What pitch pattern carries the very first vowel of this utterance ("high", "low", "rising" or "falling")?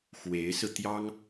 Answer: rising